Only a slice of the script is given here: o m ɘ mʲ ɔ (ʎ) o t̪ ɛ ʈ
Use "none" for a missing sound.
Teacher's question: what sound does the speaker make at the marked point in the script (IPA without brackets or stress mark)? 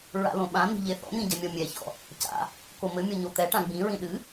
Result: ɲ